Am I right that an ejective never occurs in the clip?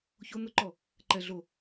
yes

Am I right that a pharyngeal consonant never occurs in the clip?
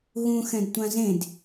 yes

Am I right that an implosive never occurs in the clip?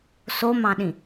no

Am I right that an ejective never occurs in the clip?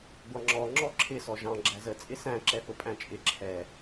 no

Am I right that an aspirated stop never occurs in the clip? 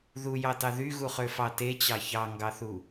yes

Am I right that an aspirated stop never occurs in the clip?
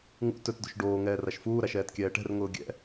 yes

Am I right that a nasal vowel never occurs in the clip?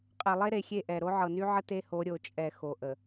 yes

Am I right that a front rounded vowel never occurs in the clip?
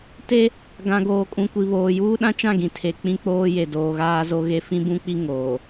yes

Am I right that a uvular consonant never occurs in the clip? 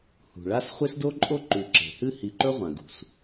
no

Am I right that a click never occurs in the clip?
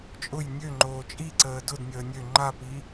no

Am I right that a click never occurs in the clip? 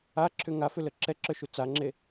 no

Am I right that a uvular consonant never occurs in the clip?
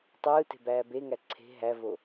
yes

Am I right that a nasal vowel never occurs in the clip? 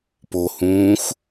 no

